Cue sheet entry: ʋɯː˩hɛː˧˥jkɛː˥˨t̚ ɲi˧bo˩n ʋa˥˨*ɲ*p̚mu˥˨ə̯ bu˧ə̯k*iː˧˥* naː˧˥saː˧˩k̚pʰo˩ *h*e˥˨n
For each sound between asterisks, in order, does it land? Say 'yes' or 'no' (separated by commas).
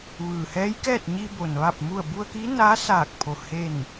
no, yes, yes